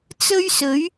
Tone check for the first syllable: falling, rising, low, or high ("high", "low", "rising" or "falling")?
high